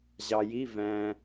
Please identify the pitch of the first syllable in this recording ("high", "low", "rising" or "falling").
low